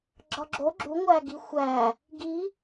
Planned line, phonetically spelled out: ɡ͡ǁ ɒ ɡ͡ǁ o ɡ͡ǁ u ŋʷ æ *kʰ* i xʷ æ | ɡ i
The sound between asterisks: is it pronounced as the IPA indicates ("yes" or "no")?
no